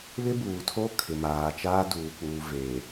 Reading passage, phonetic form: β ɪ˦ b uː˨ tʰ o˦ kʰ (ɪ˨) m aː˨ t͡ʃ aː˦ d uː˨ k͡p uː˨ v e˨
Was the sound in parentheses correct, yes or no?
yes